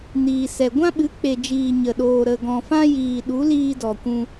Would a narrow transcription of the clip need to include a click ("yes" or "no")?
no